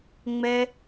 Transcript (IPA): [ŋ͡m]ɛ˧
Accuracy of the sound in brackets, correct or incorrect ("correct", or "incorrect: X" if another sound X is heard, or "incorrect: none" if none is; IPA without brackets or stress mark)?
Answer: correct